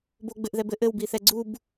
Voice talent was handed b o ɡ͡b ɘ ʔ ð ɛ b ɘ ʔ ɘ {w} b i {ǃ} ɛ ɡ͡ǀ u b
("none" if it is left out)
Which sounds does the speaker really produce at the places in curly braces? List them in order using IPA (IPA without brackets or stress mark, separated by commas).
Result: w, θ